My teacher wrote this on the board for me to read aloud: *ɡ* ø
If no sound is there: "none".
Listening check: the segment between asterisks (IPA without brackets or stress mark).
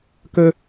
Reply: k